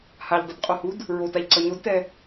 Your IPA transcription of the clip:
haʎdˤidqʼohud | ɹotaʎǀʌ ɲodtɛ

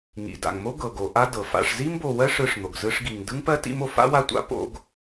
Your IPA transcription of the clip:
ŋḭ˩da̰˩ŋ mo˦ɡɤ˩ɡo˩ ʔa˦ dɤ˩fa̰˨ʂ zi˥mbo˨wɜ˥ ʂɯ˨ʂn̪o˩ɡ zɯ˦ʂɡi˨ŋ dɯ˥ŋpɜ˥tḭ˦mo˨ fa̰˥wa˦tʷa̰˥ po̰˦ɡ

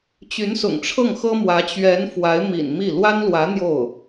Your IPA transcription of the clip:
t͡ɕy˧˥nsʊ̰˨˩ŋʈ͡ʂʰɤ˥˩ŋ xɤ˥mwä˧˥ t͡ɕɥɛ˧˥n fwa˧˥ɪ̯mḭ˨˩n mi˥˩ lwa˥nlwä˧˥ n̪jo˥˩ʊ̯

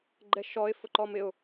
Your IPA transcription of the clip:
ɡ͡ǃɛʃɔɪ̯ fʊǃɔmɪʊ̯

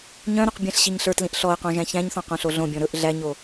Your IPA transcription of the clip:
ɲœ̃ɾɵq bʲæ̃ɬɕiɲɬə˞tlĩʔ ɬɔə̯qõ ʒæ̃çæ̃ɲθɔ̃ qõɬoɮõbʲɔ̃ ɾɵʔ ɮæɲo

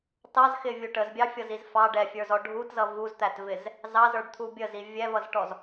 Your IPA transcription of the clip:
tɑzxɪvʲu ʈəzbʲɑfʲʌziz fɑ ɖɛfʲə˞zɔ ɖʱutzʌ vuzt̪ætvɪz | zɑzə˞ɖt̪ʰu bʲəzi vʲɛvʌzʈɔz

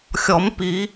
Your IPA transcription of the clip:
xʲɔ˨˩˦mpi˨˩˦

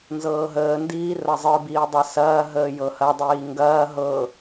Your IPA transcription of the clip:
nzɤːɦəːndiː rɐzˤɯbiː dˤɤsɐːɦəː jɤhɐdˤiː ŋɡɐː ɦɤ

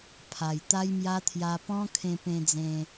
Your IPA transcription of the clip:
pʰa˨˩jt̪a˦jmja˦ t̪ʰja˧pɔ̃˦ kʰẽ˧pẽ˧d͡zẽ˧

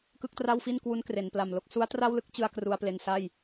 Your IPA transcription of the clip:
kɯ˥˩k̚tra˥˩wfi˥˩nkwu˦˥n kre˩˦npla˨˩mlo˦˥k̚ su˦˥a̯tra˥˩wlɯ˥˩k̚t͡ɕɯ˧a̯ kru˧a̯ple˧nsa˥˩j

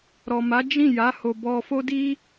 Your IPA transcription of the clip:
ɾɔ˨ma˨˦ d͡ʒĩ˦˨ja˨˦ ho˧ bɔ˧fo˦ di˦

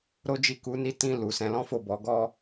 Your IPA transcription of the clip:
ɾo˦d͡ʒi˦˨ ku˨˦ ni˧tĩ˧ lu˨ sɛ̃˧lɔ̃˦fo˦˨bɔ˨˦ ɡɔ˦

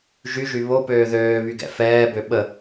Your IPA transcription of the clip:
ʒyʒy βopøː ðøːβy ɡɛ̰fɛːbø ɓə

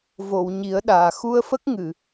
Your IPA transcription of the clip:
vo˨˩˨wɲi˨˩˦ə̯ɗaː˨˩˨ xu˧ə̯fə˦˥k̚ ŋɨ˨˩˨

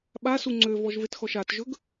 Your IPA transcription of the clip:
ɓasu ŋ͡ǀøvɔʒvetxɔʃ atʒɵɡ

